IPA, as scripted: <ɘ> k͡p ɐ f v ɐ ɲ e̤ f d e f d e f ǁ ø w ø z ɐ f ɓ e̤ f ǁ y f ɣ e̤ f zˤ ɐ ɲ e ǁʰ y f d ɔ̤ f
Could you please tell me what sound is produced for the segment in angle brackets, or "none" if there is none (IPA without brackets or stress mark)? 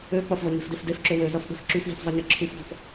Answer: ø